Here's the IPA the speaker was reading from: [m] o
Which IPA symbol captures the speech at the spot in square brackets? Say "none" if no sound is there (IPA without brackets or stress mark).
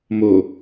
m